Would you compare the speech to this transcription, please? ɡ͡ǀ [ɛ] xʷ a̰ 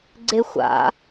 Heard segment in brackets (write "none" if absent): e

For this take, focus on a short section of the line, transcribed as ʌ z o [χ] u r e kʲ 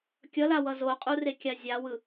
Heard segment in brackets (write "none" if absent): qʼ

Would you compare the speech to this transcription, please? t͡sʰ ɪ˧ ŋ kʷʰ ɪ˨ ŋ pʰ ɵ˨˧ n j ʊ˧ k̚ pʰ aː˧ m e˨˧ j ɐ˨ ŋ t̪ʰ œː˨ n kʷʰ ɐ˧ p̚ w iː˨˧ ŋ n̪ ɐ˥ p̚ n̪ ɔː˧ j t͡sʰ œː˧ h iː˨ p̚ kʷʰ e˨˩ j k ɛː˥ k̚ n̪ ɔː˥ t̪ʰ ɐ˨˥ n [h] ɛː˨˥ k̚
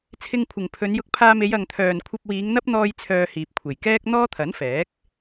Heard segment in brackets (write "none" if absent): f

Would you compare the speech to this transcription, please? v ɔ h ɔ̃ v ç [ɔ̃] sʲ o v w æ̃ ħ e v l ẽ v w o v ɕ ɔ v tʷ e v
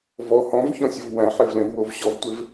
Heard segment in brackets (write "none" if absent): ɔ̃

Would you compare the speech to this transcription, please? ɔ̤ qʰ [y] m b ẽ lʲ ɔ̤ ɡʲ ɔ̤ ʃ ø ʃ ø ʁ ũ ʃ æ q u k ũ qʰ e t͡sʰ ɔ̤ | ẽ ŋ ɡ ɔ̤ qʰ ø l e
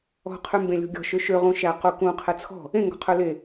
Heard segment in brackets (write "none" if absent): y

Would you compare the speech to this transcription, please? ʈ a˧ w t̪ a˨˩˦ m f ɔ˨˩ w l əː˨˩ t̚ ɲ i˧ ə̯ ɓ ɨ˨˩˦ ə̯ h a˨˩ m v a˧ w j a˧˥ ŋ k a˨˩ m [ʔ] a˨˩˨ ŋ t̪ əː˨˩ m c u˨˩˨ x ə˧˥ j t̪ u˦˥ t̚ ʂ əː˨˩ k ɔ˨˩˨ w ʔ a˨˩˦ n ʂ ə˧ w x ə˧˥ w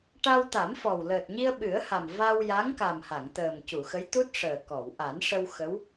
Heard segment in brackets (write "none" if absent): h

